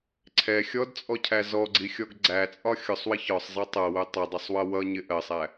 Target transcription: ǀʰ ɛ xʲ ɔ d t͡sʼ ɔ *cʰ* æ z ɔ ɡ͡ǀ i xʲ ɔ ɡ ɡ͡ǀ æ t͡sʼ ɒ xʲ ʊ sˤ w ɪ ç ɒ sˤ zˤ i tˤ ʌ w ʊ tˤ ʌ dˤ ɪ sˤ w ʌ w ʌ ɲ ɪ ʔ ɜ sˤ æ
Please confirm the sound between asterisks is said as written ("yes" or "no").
yes